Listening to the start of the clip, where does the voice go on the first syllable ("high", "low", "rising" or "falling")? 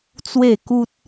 falling